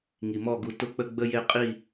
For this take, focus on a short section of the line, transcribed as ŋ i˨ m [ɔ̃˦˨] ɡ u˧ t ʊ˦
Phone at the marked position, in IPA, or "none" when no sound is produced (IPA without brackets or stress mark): ɔ˦˨